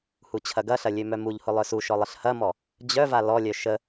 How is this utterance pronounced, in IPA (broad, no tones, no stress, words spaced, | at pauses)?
hut͡ɕʰɐɡɐɬɐ lʲømœmuʎhʊ lˠœsuʃɔ lˠəɬhɐmɔ | d͡ʑœva lɔlʲœ ʃə